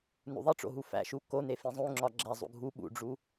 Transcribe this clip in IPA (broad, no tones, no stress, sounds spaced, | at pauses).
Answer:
n ṵ ðˤ i ʈ͡ʂ o̰ ɦ u f æ̰ ʃ u k o n e f ĩ zˤ ũ ŋ͡ǁ ɒ ɡ͡ǁ æ zˤ ṵ ɡʱ u ɓ ṵ ɖ͡ʐ u